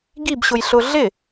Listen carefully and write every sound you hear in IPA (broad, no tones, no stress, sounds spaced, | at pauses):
ɡ i b ɕ ʊ j ɬ ʊ ɮ ɪ